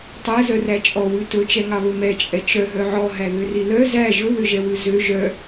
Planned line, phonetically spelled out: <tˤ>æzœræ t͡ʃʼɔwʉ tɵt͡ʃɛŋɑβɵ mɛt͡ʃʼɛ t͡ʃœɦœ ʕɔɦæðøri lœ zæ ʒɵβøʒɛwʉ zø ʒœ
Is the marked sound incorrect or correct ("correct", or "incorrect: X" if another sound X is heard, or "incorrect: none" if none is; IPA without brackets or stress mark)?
correct